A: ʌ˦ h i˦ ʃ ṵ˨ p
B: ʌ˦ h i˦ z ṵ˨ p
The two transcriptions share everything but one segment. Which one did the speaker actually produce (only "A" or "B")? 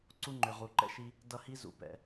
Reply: B